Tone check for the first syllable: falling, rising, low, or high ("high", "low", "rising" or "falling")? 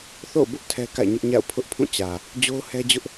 falling